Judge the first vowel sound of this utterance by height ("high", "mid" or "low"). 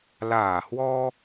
low